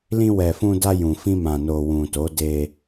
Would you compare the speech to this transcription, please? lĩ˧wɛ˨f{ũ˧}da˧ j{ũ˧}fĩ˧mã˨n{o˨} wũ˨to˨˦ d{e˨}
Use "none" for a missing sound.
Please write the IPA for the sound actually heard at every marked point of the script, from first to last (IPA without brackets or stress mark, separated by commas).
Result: ũ˧, ũ˨, o˨, e˧